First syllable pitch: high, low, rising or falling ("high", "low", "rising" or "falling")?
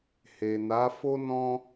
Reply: low